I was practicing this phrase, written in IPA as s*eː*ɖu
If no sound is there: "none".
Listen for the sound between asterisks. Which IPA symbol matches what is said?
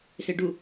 e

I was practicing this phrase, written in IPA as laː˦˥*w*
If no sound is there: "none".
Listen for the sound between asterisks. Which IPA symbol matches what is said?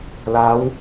w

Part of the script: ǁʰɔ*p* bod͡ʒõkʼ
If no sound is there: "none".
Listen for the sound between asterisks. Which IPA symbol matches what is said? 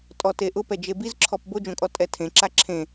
p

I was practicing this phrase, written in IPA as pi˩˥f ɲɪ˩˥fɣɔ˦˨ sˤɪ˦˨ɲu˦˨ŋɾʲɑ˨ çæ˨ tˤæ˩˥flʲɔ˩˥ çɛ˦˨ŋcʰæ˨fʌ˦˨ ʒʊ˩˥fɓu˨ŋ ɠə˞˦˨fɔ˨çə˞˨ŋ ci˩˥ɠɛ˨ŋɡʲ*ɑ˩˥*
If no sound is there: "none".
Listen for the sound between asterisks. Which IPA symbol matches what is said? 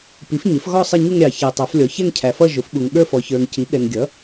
ʌ˩˥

